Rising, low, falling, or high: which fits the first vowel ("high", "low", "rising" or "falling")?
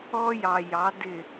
high